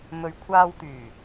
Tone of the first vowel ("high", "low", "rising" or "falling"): low